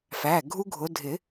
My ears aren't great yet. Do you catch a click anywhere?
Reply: no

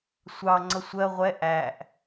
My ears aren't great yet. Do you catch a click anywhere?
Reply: yes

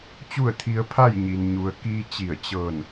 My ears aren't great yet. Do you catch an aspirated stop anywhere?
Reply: yes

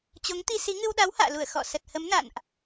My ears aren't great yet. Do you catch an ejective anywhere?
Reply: no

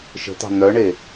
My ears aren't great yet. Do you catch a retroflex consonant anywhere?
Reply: yes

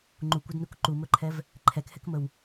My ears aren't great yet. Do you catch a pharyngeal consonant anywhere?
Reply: no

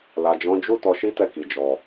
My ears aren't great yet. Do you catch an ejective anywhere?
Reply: no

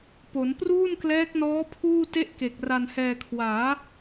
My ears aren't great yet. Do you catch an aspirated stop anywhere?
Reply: yes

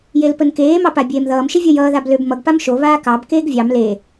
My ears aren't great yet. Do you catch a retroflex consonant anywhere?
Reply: no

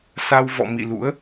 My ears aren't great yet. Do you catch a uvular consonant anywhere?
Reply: no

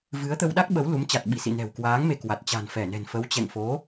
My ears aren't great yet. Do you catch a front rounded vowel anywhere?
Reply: no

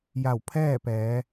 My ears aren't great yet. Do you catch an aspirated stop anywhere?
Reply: yes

